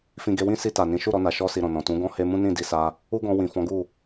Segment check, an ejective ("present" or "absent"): absent